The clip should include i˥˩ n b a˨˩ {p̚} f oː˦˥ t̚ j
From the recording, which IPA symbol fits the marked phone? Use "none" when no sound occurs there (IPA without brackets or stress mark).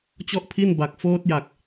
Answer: k̚